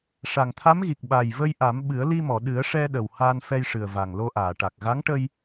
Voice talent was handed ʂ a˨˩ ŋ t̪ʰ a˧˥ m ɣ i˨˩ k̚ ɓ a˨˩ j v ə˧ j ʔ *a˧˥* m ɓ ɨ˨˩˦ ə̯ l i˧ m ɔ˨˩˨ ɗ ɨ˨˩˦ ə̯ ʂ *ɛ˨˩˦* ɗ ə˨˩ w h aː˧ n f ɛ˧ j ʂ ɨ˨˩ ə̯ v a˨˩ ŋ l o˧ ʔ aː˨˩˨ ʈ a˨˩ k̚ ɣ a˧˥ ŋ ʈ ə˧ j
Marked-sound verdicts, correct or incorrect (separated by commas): incorrect, incorrect